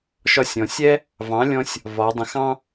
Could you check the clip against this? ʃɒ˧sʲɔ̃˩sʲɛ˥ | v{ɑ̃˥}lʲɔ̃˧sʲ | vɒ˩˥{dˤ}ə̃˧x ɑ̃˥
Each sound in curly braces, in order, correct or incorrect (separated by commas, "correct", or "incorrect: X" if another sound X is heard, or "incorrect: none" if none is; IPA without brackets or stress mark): incorrect: ɑ̃˩˥, correct